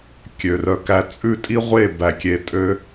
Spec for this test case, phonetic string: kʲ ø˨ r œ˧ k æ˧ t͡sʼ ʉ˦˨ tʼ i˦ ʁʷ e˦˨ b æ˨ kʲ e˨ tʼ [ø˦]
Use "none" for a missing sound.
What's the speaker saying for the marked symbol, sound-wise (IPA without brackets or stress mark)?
ø˧